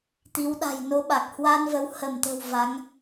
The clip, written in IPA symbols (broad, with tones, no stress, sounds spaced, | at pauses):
t̪ i˨˦ w ɗ a̤˨˩ j n o˨˦ ɓ a˨˩ k̚ h w a˧ n v ə˨˦ w h ə˧˩ m t̪ ə̤˨˩ w v a˨˦ ŋ